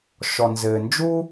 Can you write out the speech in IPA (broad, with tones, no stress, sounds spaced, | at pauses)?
ʃ ɔ˨ n z ɘː˨ n d͡ʒ u˥